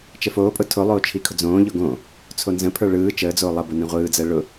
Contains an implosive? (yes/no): no